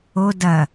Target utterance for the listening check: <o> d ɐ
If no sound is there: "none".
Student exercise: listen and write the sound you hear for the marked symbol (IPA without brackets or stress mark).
o